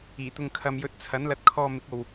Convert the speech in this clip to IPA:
iː˨˩ t̪ ʊ˨ ŋ kʰ ɐ˨ m j ɵ˨˥ t̚ t͡sʰ ɐ˨˥ n l ɐ˨˥ t̚ kʰ ɔː˧ m ɪ˨˥ k̚ o˨ w

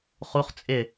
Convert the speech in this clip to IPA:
χ u χ t͡sʼ ɪ

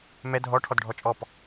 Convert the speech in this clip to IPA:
m ɛ dʱ ɔ ʈʰ ɔ d ɖʱ ɔ t͡ʃʼ ɔ p

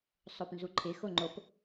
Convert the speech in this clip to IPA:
sˤ o p n z u ǃʰ ɪ x o ŋ͡ǃ o p

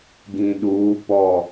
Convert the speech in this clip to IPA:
ɡ ĩ˨ ɗ uː˨˦ p ɔ˦˨

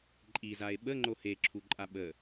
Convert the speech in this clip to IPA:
ǃʼ i z a e̯ ɓ ə ŋ͡ǃ o h e ǁʰ u ǃʼ a ɓ ə

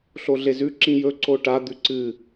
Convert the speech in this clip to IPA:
ɬ o ɮ e z ʉ ǁ ĩ j ɵ ǀ o ʈ a d̪ ʉ ǀ ɨ

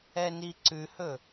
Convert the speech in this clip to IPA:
ɛ n i ǀ ʉ h ɵ

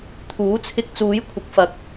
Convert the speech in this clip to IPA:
t̪ʰ uː˨˥ t͡sʰ ɪ˧ k̚ t͡s uː˨˥ j kʷʰ ɪ˨˥ k̚ f ɐ˨ k̚

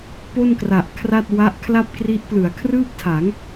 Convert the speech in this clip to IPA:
p o˥˩ n k r a˨˩ ʔ kʰ r a˥˩ t̚ w a˦˥ ʔ kʰ l a˥˩ p̚ k r i˦˥ ʔ p l ɯ˩˦ a̯ kʰ r ɯː˥˩ p̚ tʰ a˩˦ ŋ

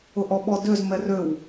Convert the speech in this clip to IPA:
ʊ ʔ ɔ ɓ ɔ d ø z m ɛ r ø w

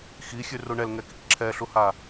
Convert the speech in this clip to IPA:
x i xʲ ʉ r u ɳ ɛ l ŋ ɛ k i k ǁʰ ɛ ɬ u h a

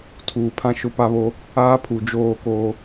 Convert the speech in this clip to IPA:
tʰ uː˨ pʰ ã˦ ʃ ʊ˦ p a˦ β o˦ | aː˦ pʰ u˨ d͡ʒ oː˦˨ k oː˦

